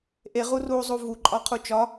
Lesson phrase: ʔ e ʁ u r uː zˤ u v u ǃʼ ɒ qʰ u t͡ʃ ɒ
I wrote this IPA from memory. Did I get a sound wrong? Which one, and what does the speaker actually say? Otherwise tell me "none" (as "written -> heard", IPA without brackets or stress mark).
none